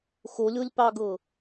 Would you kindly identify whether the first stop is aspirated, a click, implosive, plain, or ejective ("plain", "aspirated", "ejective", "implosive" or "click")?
plain